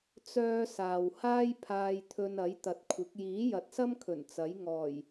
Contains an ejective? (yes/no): no